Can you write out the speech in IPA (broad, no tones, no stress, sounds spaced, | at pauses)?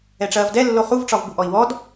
ɛ ʈ͡ʂ ɐː v d ɛ lː o χ u v ʈ͡ʂ ɒ v b u ʔ ɔ i̯ w ɔ d